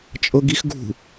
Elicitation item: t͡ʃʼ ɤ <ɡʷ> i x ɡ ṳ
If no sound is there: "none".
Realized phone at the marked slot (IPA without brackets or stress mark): ɡ